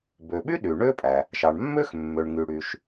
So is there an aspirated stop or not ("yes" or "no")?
no